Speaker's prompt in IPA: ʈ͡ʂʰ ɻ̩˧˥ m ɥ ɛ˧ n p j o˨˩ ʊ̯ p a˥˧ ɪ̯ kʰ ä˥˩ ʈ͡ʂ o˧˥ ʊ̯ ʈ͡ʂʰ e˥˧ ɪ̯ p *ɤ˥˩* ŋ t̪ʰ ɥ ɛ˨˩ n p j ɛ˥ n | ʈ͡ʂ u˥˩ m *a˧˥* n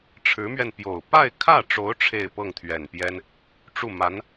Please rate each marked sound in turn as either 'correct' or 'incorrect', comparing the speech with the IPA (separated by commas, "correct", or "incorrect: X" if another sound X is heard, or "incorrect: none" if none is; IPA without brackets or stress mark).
correct, correct